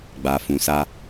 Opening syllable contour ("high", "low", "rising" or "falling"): low